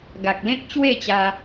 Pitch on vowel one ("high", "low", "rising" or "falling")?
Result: low